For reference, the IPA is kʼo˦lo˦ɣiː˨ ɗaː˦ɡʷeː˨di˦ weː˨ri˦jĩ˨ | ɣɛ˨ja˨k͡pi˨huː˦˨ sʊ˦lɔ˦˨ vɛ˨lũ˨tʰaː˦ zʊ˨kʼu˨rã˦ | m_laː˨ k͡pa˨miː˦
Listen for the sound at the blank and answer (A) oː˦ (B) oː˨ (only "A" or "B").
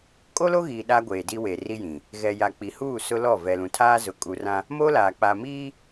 A